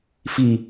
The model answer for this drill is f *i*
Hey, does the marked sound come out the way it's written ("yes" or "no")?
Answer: yes